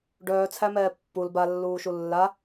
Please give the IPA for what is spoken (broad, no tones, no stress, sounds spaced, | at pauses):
ɖ œː t͡sʰ æ m ɛː pː u l b a lː uː ʃ u lː a